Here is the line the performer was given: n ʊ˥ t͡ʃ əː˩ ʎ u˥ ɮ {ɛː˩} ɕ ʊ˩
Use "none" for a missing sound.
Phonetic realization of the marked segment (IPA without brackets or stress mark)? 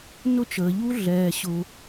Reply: ɛː˩